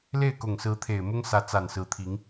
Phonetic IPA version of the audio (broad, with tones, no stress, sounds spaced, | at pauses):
l e˥˩ ɪ̯ k ʊ˨˩ ŋ s ɹ̩˧˥ t̪ʰ e˨˩ ɪ̯ m ʊ˥ ŋ s ä˧˥ t͡s a˨˩ n s ɹ̩˧˥ t̪ʰ i˧˥ ŋ